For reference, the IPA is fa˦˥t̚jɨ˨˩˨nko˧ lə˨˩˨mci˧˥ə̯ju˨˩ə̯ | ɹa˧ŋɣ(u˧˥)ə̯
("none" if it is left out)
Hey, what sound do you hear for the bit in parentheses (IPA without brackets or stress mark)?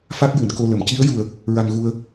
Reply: u˧